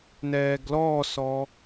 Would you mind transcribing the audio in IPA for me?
nɛːɡlɔːsɔ

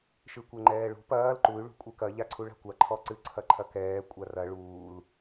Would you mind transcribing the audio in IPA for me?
ʃɨkʷɛŋ͡ǃɛːɭṳ pɐːl ǃuy̯ ɭṳkʷʼɨkɐ ʎaǀʰuɭa̤kʷa ǃʰɔǀɨ ǀʰɐǃʰɐkɛː kʷʼarɐ ɭuːl

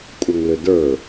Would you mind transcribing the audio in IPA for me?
kʷʼʌŋlʏdə˞

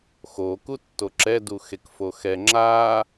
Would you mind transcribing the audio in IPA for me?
xo kutːoǁɛ duxekfoxɛ ŋ͡ǁa

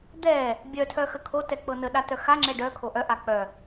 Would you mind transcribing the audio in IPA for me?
d̪ɛ | bʲœtʰœxə kʰotɛk͡pɤ nəɗatœ xaŋ͡ǁɛ ɖœkʰo ʔœʔa k͡pœ

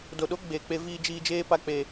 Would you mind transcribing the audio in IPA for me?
do˨ɗo˨˦ ɡ͡be˦˨k͡pe˦ viː˦d͡ʒiː˦ d͡ʒeː˦pa˦k͡peː˦

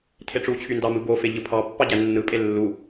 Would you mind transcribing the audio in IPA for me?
tʰeʈ͡ʂut͡ɕʰy ndɑmɯ bofe ʎɯpʰɑpːɑ ɟænːɯpʼe lːu

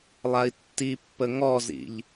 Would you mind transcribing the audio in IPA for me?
lˠai̯tːipːə ŋɔzḭʎ

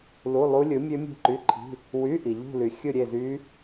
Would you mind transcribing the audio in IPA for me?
lu˧˥˧lˠu˦˥ lʲɯ˨˥mʲø˦˥ mʲe̤˥˧ǃy˧˥˧ǃʰi̤˧˥˧ | wy˧˥˧ʔi˨ ʎṳ˥˧ly˨ xʲɯ˥˧ɾʲe˥˧zy˦˥

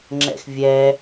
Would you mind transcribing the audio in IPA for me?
ŋ͡ǁɛ̰xvʲɛ

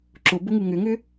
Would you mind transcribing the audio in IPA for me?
ǁʊbʊŋu ŋʏŋʏ

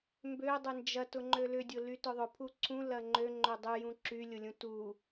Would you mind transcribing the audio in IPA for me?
mbø dˤʏnd͡ʒɐ tʊŋ͡ǃølʏdʲʊ lytʊðˤʊ pʰuǀʰũ lɐŋ͡ǃø ŋ͡ǃødˤyjũ ǁylʲʊlʲũ tu

